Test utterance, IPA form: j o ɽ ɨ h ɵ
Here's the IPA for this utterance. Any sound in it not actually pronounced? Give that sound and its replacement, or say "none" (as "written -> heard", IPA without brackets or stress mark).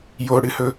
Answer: none